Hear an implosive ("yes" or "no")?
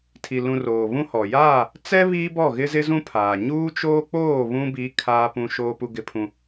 no